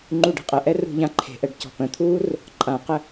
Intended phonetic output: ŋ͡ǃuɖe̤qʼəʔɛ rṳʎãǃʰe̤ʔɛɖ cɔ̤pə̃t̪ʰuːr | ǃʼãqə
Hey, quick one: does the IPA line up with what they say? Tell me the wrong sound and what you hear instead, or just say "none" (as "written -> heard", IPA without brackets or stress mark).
none